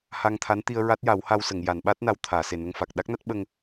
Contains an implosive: yes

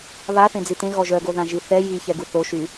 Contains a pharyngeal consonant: no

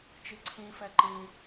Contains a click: yes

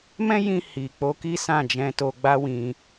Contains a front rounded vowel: no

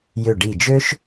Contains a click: no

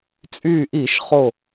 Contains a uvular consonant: yes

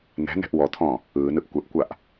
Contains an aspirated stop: yes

